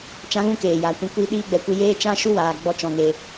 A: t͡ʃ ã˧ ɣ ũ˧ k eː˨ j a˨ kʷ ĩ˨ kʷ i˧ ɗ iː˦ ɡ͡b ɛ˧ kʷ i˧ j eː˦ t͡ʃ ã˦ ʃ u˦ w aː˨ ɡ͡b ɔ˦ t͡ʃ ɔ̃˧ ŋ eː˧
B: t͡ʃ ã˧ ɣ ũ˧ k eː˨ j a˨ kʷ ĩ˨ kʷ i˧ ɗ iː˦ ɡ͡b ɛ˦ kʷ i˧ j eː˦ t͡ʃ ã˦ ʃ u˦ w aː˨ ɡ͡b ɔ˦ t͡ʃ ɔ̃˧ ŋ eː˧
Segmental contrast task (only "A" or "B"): A